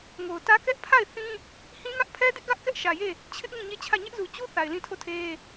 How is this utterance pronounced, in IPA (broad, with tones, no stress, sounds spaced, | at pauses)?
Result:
ŋ o˨ ʊ̯ t ä˦ k ɛ˦ ʔ pʰ a˦˨ ɪ̯ θ ĩ˦ | h ĩ˦ ŋ ä˦ ʔ pʰ ɛ˦ d ɪ˦ ʔ ɡ ä˦ ʔ k ɛ˦ ʔ ʃ ä˨ j e˦˨ | t͡ɕʰ ɪ˦ ʔ ŋ ĩ˦˨ ɲ e˦˨ t͡ɕʰ ä˦˨ ɲ ɛ˦ ʔ z u˨ t͡ɕ u˦ θ a˨ ɪ̯ l ĩ˦˨ tʰ o˦˨ tʰ e˦